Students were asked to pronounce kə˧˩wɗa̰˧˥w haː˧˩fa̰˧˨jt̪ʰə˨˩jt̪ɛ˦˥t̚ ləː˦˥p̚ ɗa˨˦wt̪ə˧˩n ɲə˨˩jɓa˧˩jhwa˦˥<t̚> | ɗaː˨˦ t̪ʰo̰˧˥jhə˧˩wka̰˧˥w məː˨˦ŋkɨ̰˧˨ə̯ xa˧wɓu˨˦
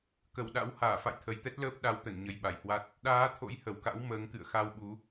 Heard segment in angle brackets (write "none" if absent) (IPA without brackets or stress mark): t̚